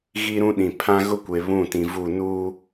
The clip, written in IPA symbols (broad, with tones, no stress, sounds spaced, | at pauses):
ɣ i˦ ɾ ũ˦ ɗ ĩ˨ pʰ ã˦ ɣ ʊ˦ kʷ e˨ β ũ˦˨ t ĩ˨ v u˦˨ n uː˦